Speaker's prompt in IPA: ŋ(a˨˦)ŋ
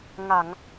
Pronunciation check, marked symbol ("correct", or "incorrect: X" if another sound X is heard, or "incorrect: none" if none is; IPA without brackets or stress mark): incorrect: a˧˩˨